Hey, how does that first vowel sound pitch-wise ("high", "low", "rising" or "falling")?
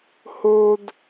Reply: high